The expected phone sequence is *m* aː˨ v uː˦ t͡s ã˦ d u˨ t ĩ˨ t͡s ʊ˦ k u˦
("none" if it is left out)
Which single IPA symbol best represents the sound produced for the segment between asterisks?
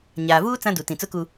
ɲ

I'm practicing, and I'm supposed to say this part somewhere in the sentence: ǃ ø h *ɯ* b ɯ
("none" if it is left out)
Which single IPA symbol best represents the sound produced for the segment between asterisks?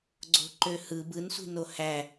ɯ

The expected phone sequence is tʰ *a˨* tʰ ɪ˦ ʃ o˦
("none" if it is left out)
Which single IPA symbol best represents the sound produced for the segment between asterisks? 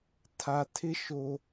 a˨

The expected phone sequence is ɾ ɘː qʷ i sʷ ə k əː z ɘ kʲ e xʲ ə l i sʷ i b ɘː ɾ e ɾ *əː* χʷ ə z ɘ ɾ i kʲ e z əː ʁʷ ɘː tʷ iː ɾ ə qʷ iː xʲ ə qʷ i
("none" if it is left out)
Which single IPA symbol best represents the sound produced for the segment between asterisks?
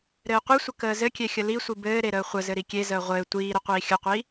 əː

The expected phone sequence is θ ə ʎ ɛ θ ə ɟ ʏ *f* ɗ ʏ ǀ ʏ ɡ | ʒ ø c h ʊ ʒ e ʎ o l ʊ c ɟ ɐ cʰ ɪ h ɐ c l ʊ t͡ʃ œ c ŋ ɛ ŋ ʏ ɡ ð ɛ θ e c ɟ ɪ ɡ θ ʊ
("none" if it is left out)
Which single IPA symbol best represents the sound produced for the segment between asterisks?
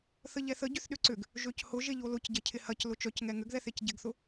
θ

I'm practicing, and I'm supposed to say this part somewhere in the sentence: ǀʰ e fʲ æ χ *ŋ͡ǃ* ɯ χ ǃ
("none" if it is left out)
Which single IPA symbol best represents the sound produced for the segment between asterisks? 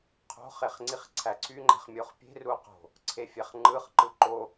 ŋ͡ǃ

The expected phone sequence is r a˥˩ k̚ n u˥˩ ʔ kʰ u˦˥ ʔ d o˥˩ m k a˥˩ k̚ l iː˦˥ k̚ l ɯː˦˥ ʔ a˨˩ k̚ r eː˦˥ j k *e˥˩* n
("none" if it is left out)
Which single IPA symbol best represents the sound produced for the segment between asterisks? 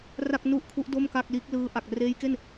e˥˩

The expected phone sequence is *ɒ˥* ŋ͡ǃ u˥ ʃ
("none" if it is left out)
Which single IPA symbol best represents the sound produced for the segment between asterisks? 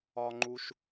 ɒ˥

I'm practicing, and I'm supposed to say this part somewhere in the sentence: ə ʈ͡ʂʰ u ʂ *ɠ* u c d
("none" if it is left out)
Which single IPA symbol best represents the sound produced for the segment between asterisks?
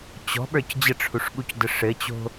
ɠ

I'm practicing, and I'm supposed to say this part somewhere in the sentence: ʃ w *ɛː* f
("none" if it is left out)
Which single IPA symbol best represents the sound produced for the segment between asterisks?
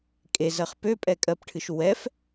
ɛ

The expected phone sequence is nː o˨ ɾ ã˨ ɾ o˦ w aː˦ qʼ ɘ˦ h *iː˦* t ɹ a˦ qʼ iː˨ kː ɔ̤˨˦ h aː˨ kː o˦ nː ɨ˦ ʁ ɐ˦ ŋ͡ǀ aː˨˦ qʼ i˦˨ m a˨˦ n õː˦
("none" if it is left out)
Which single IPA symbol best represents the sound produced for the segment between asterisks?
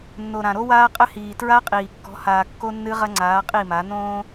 iː˨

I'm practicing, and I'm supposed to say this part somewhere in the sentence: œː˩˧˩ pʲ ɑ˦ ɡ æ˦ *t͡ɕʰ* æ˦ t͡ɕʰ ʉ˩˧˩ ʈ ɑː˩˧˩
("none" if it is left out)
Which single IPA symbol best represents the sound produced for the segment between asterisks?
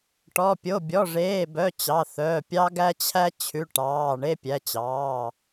t͡ɕʰ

